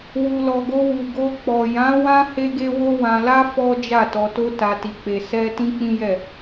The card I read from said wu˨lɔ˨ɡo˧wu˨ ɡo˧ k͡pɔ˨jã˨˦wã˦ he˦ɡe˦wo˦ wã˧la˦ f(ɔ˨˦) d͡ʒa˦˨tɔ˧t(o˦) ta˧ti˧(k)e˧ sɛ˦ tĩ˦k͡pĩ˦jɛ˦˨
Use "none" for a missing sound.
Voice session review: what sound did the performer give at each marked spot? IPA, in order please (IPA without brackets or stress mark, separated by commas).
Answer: ɔ˦, o˦, k͡p